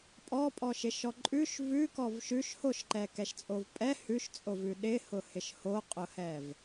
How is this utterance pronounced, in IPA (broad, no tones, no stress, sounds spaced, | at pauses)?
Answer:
pʼ ɔ pʼ ɔ ʃ ɪ ʃ ɔ ǃʼ ʉ ʃ v ʉ k ɔ v ʃ ʉ ʃ h o ʃ ǃ ɛ k ɛ ʃ t͡sʼ o v pʼ ɛ h ʉ ʃ t͡sʼ o v ʉ ɗ ɪ h ʊ h ɪ ʃ h o qʼ ʊ h ɛ v